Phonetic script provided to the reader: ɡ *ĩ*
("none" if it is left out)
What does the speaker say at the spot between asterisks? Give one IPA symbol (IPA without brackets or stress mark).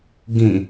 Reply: ĩ